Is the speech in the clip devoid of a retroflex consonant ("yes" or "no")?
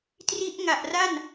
yes